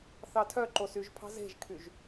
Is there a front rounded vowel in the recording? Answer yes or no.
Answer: yes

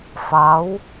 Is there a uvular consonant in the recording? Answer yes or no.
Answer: no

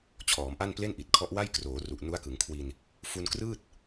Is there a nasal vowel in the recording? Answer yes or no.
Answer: no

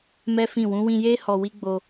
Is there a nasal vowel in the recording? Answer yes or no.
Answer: yes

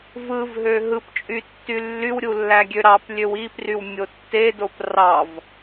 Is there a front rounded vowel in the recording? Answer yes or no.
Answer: yes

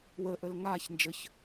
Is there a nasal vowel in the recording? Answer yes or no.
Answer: no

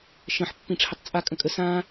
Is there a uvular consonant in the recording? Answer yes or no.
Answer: no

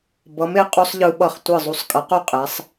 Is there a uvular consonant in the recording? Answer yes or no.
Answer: yes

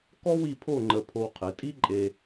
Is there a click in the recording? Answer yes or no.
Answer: yes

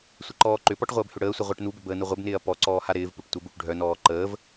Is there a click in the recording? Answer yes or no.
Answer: yes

